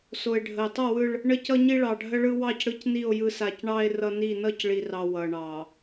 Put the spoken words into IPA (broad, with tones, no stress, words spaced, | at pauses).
so˨e̯ɖʱə˨e̯tˤʌ˦˨wɯ˦ɭ | ɳə˦cʌ˦ɲi˦ ɭɑ˨ɖʱə˦ɭɯ˦wɑ˦˨c ɽɯ˦cni˦˨o̯ jɯ˦sa˦˨c ɳɑ˦e̯ rʌ˦ni˦˨ nʌ˦cɭi˨rɑ˨ wʌ˨ɳɑ˨